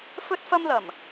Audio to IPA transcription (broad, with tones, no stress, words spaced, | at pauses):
fɵ˥t̚fɐ˥mlɐ˨˩m